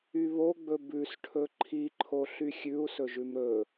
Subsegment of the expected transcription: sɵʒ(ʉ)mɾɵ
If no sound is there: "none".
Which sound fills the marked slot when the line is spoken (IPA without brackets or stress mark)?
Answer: ʉ